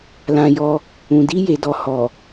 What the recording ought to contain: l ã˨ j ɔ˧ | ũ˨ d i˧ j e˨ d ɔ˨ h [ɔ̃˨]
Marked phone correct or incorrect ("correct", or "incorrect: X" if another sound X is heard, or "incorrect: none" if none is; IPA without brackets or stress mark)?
incorrect: ɔ˨